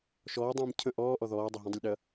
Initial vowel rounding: rounded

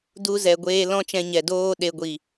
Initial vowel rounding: rounded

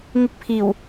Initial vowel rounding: unrounded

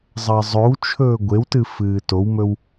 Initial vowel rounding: unrounded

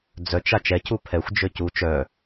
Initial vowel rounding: rounded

